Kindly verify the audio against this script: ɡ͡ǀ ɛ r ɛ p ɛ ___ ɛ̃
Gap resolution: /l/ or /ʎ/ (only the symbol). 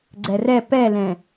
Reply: l